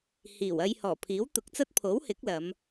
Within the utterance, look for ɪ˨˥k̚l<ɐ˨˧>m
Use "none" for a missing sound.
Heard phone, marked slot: ɐ˨˧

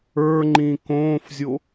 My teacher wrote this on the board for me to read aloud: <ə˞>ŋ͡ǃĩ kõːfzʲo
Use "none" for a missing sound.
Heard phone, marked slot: ə˞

